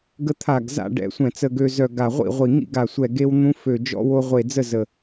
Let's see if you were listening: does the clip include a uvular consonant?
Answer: yes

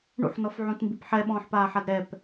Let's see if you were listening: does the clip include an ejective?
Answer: no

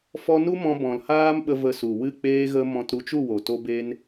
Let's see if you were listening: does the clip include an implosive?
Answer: yes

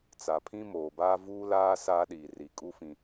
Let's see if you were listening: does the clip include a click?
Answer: no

